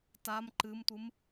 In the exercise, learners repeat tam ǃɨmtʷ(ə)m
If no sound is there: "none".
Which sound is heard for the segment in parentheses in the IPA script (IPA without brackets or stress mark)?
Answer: ɨ